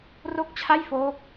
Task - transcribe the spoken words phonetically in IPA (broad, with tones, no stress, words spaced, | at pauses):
ro˥˩k̚t͡ɕʰa˥˩j foː˦˥k̚